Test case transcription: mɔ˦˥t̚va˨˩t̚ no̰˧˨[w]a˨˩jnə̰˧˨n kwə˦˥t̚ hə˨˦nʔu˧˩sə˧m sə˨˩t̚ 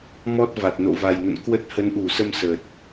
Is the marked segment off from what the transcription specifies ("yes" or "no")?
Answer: yes